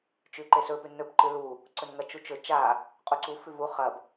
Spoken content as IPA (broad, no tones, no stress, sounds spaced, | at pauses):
t͡ʃ ʉ ǃ e s ɵ p ʉ n ɵ p ǃ ɨ l u | ǀ ɵ n ŋ ɐ t͡ʃ u t͡ʃ ɵ t͡ʃ a | qʼ u ǀ u f ʉ v u χ ɐ b